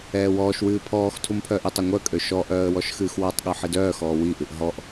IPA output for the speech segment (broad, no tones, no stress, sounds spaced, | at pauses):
ɛː w ɔː ʃ w ɨː pʰ ɔː x tʰ u m pʰ œː ʔ i tˤ œ ŋʷ œ kʼ ø ʃ ɔ ʔ œː ə̯ w ɔ ʃ x ɨː x w ɔ tˤ ɠ ø ħ ɨ d œː x ɔː w i ʔ ɨ ʔ ɦ ɔ ʔ